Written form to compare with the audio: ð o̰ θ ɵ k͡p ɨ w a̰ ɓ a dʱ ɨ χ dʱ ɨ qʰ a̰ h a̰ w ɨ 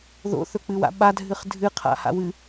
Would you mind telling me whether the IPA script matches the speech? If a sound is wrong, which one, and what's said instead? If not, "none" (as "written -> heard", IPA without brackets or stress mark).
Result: none